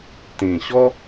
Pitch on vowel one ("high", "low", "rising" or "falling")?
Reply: low